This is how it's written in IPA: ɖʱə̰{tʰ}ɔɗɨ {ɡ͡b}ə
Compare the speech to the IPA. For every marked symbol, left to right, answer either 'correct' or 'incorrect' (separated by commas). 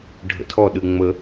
correct, incorrect